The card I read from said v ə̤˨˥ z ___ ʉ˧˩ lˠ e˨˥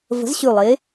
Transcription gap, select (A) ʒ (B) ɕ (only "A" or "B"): B